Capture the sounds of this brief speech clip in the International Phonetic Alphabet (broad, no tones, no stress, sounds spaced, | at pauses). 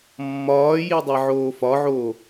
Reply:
mː ɒː j i dˤ e ʕ oː f ɒ ʕ oː